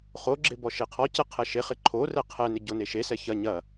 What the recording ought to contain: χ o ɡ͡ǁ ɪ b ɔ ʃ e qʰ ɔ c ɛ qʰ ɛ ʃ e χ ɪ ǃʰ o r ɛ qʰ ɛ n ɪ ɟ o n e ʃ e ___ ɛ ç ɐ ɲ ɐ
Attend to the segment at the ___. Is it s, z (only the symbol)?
s